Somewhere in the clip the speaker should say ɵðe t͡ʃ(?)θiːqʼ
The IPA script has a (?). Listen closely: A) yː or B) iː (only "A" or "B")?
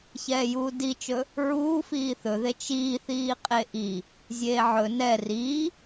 B